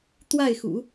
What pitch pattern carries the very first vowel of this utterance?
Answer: falling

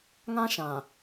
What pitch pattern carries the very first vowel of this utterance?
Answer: high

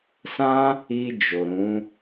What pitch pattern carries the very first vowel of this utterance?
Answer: high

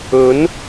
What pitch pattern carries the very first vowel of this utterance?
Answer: rising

